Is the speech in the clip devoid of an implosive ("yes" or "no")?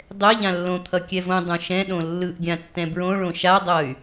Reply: no